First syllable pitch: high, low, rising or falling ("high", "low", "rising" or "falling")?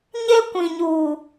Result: high